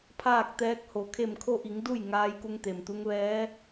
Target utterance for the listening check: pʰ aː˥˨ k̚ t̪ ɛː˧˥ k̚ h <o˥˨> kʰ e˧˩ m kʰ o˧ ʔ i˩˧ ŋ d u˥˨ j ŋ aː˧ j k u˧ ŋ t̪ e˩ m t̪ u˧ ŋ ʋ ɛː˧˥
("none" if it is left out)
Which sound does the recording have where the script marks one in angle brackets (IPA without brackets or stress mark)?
o˩